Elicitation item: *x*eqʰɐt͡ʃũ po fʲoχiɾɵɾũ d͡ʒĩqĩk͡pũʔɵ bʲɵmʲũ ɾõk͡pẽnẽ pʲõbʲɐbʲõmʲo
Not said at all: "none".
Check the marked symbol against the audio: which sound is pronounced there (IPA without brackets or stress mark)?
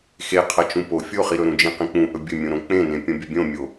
x